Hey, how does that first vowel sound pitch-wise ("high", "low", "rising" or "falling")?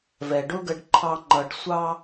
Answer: low